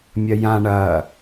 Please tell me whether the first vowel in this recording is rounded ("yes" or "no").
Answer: no